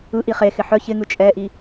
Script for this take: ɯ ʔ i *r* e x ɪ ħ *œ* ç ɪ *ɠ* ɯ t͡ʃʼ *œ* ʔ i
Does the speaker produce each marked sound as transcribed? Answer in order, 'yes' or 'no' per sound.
no, yes, no, no

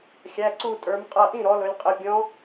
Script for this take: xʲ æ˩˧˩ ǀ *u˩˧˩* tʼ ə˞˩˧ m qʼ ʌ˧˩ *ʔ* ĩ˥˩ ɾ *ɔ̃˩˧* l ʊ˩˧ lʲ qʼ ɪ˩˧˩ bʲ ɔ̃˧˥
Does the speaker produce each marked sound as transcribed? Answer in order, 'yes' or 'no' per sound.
no, yes, no

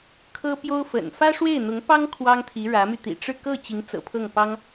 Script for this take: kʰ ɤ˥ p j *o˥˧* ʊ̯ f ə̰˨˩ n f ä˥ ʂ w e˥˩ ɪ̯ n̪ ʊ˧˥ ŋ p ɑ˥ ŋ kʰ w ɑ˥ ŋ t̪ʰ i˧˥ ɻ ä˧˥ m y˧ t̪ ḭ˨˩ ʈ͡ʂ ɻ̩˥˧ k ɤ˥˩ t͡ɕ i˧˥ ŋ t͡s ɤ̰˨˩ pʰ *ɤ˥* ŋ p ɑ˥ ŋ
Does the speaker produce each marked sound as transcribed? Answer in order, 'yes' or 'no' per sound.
no, no

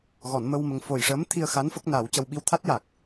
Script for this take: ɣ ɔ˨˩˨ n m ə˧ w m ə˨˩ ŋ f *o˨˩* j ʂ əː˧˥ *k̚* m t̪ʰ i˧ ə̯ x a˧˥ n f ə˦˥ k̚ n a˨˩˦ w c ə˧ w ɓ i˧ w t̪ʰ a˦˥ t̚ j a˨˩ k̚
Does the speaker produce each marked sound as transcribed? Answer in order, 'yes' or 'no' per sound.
yes, no

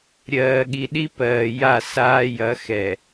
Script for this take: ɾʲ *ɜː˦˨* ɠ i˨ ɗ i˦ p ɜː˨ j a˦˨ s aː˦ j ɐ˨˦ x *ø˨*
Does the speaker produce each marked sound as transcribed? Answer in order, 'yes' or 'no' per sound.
no, no

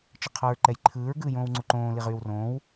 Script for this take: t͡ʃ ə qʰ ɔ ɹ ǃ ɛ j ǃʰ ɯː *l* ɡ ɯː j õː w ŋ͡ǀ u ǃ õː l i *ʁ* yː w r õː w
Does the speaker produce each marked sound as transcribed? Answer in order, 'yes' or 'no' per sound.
no, yes

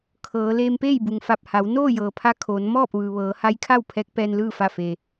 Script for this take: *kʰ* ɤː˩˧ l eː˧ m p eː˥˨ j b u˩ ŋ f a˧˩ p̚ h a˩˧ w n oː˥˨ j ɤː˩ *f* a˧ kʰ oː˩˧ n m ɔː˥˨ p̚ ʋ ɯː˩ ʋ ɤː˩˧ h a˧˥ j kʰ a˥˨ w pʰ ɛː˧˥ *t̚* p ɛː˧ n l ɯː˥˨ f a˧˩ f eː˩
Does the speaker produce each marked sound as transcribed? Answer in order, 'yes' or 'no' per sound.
yes, no, no

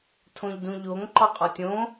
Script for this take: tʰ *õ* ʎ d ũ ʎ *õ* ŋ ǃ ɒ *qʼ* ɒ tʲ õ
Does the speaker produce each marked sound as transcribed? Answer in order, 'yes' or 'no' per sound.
yes, no, yes

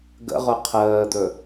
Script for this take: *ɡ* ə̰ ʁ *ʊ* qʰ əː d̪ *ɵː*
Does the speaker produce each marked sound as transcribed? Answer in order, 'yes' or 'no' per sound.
yes, yes, no

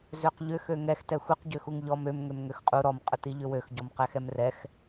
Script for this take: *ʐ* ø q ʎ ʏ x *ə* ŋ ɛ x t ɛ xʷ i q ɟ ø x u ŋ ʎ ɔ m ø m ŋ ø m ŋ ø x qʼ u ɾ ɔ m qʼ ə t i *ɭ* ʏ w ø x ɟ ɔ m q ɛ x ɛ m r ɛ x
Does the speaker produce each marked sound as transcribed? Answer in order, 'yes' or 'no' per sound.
no, no, no

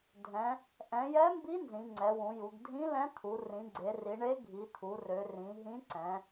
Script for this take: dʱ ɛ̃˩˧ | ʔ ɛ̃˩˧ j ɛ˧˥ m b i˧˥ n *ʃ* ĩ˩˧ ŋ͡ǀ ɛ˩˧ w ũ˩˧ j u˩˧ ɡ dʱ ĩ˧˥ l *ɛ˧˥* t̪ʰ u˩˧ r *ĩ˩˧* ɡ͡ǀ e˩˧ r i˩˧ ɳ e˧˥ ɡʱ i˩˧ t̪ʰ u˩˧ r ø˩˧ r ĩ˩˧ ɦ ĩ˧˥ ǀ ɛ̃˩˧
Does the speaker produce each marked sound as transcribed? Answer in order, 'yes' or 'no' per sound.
no, no, yes

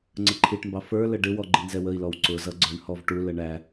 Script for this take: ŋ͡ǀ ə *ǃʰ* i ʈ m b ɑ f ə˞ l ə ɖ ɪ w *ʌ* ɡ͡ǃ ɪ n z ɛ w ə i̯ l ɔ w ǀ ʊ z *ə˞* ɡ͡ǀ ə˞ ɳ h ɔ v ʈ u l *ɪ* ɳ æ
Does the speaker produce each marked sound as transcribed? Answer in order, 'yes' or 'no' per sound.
yes, no, no, no

